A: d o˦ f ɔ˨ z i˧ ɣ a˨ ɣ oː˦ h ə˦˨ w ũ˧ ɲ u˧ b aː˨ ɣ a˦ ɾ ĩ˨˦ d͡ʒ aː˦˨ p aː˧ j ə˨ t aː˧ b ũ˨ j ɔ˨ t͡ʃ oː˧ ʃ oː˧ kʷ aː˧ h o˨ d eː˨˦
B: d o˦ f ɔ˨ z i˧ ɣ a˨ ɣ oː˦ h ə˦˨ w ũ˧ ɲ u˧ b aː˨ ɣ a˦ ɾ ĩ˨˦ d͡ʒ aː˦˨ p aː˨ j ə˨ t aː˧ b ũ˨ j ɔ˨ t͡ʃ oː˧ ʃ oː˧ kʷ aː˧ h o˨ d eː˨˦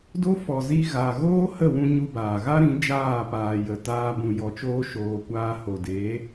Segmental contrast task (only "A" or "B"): B